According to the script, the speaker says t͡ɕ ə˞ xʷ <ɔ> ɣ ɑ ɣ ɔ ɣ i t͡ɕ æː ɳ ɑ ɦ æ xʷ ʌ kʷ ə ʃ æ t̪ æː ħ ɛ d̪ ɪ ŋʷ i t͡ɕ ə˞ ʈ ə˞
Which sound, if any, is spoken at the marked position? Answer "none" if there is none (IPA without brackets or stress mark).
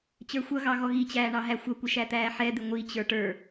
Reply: ʌ